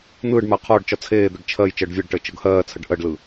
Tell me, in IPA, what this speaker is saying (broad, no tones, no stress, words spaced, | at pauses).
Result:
n̪ɯːɖma qʰɒːɖt͡ʃɒ t͡sʰeːd̪əɖ t͡ʃʰɜj t͡ʃəːɖvʲɛɖʈəː t͡ʃɤɡhɜːt͡sʰəɖ ʔɜɖlɯ